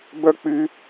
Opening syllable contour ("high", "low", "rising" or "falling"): high